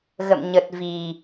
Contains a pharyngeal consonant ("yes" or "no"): no